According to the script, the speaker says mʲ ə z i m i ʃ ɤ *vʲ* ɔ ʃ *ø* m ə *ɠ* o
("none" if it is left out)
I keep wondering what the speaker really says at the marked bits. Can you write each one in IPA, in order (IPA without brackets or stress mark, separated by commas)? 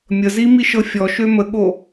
fʲ, ø, ɠ